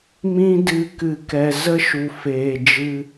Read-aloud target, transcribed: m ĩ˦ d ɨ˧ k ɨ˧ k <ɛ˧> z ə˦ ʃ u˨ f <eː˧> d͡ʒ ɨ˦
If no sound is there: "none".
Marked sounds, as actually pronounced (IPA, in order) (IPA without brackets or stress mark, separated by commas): ɛ˧, eː˨